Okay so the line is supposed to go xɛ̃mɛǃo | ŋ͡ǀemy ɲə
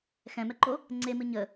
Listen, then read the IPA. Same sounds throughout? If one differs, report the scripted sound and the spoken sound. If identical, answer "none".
y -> ɨ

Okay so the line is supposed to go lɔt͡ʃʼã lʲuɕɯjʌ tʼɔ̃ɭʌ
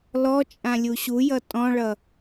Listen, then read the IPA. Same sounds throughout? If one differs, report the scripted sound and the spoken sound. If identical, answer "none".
ɯ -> u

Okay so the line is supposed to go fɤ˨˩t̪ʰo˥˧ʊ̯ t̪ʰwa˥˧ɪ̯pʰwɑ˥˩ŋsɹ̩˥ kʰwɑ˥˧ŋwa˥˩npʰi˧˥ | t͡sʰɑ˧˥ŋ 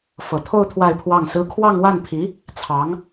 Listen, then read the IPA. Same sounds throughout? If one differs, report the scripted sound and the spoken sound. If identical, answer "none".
none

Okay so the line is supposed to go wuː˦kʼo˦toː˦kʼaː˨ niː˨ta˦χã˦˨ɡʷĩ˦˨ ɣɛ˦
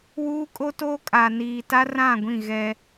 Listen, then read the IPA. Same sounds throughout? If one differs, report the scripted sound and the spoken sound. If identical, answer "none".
χ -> r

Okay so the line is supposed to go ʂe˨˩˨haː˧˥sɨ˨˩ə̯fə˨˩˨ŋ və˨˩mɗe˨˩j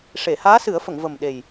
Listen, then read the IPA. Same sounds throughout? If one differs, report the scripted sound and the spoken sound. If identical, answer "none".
ɨ˨˩ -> ɨ˨˩˦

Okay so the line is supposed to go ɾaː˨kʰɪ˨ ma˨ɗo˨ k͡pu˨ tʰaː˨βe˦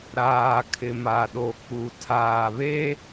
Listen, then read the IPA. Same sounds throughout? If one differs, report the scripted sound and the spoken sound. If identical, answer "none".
none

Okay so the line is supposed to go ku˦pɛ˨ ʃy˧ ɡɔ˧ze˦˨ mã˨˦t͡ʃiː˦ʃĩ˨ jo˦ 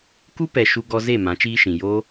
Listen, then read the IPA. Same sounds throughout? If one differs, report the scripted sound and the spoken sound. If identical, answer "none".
y˧ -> u˧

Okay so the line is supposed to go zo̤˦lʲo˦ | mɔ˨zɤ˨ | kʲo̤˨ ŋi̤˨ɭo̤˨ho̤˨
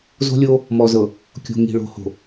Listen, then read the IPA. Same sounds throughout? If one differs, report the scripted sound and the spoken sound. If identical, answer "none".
none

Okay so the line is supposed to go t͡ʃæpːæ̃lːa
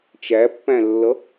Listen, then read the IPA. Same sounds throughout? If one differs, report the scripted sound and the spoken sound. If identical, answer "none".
a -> ʌ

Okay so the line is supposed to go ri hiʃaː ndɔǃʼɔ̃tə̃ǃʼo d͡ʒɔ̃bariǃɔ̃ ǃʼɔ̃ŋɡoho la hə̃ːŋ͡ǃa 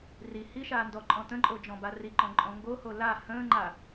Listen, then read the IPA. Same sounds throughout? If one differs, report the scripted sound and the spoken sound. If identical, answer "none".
none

